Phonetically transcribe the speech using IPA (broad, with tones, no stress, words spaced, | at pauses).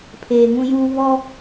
pʰeː˨ŋũ˦juː˦ βɔ˦